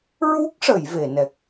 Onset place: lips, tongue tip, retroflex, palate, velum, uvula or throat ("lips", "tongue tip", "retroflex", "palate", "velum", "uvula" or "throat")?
tongue tip